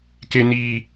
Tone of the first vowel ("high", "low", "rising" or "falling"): high